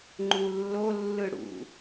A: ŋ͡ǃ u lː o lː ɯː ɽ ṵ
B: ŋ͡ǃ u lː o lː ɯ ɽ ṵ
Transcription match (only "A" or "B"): B